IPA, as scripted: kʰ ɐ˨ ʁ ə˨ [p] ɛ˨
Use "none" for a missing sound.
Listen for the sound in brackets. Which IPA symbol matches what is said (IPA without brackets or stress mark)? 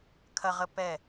p